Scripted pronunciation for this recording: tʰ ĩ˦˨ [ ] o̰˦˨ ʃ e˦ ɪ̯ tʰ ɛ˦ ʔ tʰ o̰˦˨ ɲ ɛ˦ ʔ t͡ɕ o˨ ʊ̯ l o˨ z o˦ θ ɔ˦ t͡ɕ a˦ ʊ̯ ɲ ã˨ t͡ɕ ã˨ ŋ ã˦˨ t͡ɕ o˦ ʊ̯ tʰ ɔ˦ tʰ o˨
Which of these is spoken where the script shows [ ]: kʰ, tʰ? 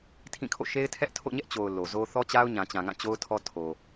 kʰ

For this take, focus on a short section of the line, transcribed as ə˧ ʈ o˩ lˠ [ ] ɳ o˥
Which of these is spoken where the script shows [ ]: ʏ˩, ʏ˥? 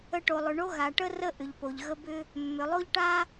ʏ˩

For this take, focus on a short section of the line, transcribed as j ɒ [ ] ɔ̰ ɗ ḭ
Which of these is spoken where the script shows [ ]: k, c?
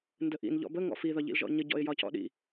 c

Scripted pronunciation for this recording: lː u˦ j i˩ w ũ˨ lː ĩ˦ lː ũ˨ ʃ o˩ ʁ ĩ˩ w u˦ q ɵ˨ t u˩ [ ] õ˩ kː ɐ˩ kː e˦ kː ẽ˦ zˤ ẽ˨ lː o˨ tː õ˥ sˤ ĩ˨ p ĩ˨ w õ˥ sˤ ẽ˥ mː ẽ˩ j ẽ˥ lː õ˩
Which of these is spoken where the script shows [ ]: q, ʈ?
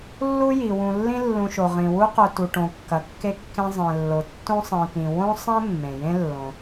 ʈ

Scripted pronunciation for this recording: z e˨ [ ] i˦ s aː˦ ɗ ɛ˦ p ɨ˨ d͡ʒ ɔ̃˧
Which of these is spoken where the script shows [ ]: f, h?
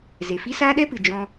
f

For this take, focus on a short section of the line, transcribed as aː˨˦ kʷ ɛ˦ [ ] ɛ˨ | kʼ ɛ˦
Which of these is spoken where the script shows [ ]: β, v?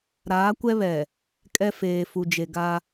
β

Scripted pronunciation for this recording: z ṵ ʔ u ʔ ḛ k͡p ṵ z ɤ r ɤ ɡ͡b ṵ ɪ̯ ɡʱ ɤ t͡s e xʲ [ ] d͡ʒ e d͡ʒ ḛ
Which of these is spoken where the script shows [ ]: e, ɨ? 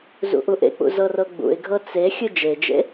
ɨ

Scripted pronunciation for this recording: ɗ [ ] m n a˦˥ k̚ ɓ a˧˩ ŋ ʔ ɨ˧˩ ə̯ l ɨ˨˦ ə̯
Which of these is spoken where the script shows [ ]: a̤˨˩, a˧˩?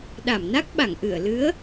a˧˩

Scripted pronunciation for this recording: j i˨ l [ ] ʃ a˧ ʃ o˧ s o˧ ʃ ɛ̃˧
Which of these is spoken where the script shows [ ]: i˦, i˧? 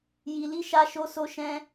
i˧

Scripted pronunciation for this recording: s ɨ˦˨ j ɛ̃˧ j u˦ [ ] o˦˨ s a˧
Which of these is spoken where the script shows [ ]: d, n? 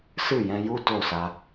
d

